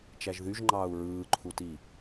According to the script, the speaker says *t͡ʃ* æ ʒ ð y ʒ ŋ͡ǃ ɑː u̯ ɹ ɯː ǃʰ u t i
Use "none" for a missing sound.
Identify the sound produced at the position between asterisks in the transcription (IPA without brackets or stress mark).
t͡ʃ